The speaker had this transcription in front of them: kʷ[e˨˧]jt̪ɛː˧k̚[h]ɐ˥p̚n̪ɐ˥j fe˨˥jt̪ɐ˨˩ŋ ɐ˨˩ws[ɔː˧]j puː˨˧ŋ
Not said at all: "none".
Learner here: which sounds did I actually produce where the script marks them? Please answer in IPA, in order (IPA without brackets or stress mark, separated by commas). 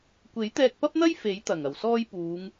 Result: e˨˥, p, ɔː˧